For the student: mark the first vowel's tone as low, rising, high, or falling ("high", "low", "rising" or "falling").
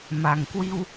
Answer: low